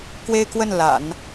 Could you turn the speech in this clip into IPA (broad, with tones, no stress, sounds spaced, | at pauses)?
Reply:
k w e˥ ɪ̯ k w ə˥˩ n l a̰˨˩˦ n